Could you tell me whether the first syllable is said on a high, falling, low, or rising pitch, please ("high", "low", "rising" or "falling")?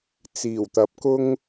low